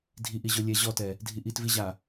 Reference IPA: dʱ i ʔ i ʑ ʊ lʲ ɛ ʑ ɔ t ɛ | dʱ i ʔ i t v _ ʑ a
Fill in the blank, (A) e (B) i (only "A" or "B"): B